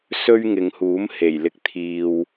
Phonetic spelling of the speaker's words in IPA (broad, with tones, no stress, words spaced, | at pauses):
sɵ˥ɥŋɪ˨ŋhuː˨˥m he˨˩jlɪ˧k̚ t̪ʰiː˨w